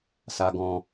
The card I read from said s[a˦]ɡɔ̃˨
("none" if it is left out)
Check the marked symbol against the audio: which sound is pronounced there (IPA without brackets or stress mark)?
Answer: a˨